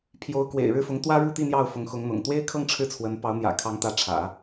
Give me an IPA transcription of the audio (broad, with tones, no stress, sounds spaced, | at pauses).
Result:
pʰ j o˧˥ ʊ̯ k w ḛ˨˩ ɪ̯ ɻ ɻ̩˥˩ f ʊ˧˥ ŋ t̪ w ä˥ ɻ u˥˧ t̪ i˥˧ n̪ j ɑ˥˩ ʊ̯ f ʊ˧˥ ŋ x ʊ˧˥ ŋ n̪ ʊ̰˨˩ ŋ t̪ w e˥ ɪ̯ kʰ ɤ˥˧ ŋ ʈ͡ʂʰ ɻ̩˥˩ t͡sʰ w ə˧˥ n p ɑ˧˥ ʊ̯ n̪ j ä̰˨˩ kʰ ɑ˧˥ ŋ t̪ ä˧˥ ʈ͡ʂʰ ä̰˨˩˦